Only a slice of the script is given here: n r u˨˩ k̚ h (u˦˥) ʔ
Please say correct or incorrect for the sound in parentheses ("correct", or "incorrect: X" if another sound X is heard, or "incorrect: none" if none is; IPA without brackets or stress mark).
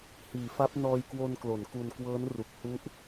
correct